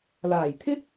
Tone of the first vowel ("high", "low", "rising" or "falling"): low